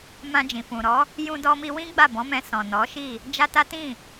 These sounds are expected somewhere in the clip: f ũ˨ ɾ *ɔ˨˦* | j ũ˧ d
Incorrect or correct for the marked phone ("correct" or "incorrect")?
correct